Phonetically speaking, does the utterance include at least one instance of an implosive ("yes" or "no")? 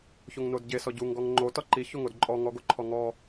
no